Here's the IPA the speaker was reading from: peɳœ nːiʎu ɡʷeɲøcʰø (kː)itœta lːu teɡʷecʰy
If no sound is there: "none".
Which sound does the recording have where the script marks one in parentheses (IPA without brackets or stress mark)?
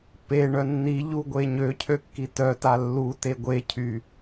kː